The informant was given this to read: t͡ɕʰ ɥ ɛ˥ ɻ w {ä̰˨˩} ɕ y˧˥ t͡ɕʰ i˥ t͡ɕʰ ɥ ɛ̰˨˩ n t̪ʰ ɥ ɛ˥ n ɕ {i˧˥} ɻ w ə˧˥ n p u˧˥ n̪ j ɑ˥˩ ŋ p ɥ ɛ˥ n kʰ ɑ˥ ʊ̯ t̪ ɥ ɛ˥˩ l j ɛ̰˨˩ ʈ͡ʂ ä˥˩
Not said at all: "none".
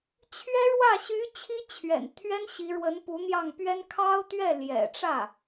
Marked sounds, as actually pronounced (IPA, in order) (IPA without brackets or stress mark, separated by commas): ä˥˩, i˧˥